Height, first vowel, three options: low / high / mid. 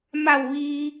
low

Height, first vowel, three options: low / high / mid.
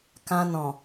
low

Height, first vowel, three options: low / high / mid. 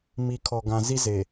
high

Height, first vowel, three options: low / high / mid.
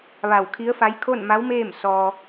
low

